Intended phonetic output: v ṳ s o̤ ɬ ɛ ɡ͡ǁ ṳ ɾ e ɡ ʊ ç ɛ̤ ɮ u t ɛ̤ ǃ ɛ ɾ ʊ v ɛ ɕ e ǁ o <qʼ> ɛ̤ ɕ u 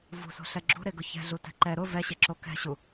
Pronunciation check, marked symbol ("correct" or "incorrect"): incorrect